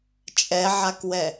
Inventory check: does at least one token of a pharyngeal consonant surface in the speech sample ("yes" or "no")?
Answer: yes